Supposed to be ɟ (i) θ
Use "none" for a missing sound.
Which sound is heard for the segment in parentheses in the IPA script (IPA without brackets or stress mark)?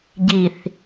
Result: i